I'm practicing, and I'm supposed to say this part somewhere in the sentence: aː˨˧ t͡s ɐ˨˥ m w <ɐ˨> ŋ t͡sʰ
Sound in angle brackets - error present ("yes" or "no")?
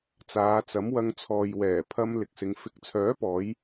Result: yes